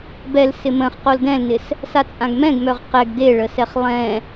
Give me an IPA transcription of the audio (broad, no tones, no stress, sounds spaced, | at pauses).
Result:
b ɛ l s ɪ m ə̃ χ q o l d ɛ̃ l n ɪ s | s a t͡sʼ ã ɡ m ɛ̃ ɡ m œ ʁ q ɛ ɡ d e ɭ ə s ɛ χ lˠ ɛ̃